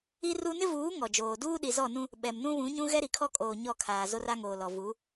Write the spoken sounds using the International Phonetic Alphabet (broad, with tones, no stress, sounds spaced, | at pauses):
i˦ r u˦ n ɪ˦ v uː˨˦ ŋ ɔ˨ d͡ʒ oː˨ d uː˦ ɗ i˨ z ɔ˦˨ n ũ˦ | ɓ ɛ˨ m n ũ˦ β ũ˨˦ ɲ ũ˦ ɣ ɛ˦ ɾ i˨ kʰ ɔ˦ kʼ oː˨ ɲ ɔ˦˨ kʰ aː˨ z o˦ r a˦ ŋ oː˨ l ɔ˨ v u˨˦